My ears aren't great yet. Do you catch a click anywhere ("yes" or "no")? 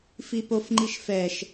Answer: yes